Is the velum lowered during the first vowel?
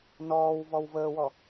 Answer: no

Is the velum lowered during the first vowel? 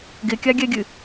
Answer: no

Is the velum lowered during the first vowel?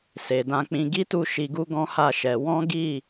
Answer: no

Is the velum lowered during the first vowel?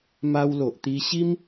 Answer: no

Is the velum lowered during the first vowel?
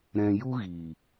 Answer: yes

